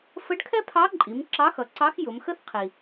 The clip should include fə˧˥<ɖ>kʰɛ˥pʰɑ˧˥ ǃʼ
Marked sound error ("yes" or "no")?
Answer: no